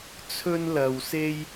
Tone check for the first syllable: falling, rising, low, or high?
high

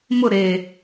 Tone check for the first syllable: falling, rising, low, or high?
falling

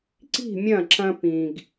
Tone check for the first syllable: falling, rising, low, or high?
falling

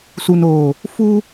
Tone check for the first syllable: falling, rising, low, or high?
low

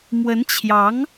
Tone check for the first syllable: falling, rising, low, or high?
rising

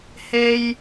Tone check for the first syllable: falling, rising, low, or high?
high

